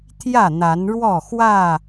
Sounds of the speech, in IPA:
t̪ʰ j ä˥˨ n̪ a˨˦ n ɻ w ɔ˥˨ x w ä˥˨

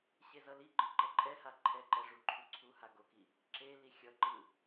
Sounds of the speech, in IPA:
ɕ e z ʌ l i ɡ͡ǃ ɯ ǃ ʌ ǃʼ ɛ h a ǃʰ ɛ ǃ ɛ ʐ u ǃʰ u ǀʰ u h a ɡ o k i | ǁ e l i xʲ ʌ ǃ ɯ

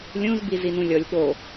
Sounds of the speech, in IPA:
lʲ ũ z b i z i n ũ lʲ ɔ lʲ ɠ o

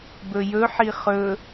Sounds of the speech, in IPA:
b ɵ j ɵ ħ i χ ɵ

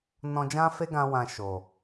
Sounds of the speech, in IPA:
n ɔ̃˧ d͡ʒ ã˦ f e˦ ɡ ã˧ w ã˧ ʃ o˨

